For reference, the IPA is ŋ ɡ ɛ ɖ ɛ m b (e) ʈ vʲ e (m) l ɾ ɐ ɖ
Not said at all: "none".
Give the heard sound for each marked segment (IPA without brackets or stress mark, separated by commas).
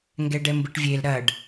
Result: ɨ, none